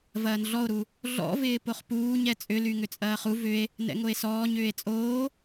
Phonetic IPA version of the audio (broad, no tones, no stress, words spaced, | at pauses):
vɐːnɮɔo̯ɾu | ɮɔ̰vɪː poχpuːɲ ɛt͡sʼʏly ŋʏt͡sʼɐːχu vʏe̯ | nɛ̰ŋoe̯sɔːɲ ʏːe̯t͡sʼoː